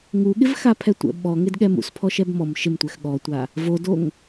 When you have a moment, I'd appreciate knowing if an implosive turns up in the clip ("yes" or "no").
yes